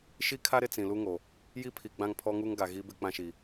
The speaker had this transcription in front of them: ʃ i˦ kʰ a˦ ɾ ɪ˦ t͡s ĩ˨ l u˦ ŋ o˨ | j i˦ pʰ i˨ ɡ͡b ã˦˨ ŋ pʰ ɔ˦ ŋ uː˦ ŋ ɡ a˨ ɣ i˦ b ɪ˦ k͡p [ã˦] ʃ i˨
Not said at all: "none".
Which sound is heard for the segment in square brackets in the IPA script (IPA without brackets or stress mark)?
ã˦